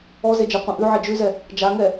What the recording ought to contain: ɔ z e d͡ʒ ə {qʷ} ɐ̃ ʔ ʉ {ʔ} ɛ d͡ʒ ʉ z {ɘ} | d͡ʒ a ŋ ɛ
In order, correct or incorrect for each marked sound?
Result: correct, incorrect, incorrect

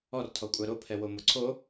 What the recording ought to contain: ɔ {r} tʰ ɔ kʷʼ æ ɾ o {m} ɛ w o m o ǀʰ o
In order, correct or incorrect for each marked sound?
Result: correct, incorrect

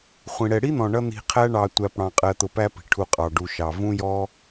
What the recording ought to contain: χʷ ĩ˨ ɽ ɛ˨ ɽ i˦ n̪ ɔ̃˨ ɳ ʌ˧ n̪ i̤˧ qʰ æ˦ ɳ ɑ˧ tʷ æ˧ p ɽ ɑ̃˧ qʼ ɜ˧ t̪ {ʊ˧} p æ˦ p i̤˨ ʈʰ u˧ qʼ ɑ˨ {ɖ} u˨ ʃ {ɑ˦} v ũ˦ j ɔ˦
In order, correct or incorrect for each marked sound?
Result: correct, correct, incorrect

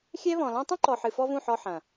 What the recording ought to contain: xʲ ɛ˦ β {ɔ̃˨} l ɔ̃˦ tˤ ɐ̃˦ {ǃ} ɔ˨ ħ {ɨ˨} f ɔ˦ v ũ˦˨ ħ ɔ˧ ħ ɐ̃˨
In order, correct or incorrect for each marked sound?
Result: correct, correct, correct

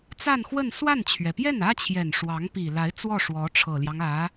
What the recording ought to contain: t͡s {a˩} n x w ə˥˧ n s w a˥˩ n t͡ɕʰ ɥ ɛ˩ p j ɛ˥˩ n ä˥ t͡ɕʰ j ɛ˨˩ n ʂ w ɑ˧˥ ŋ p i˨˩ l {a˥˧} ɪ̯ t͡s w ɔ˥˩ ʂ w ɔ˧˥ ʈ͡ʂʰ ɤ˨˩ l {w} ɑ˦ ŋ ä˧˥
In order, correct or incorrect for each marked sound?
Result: incorrect, incorrect, incorrect

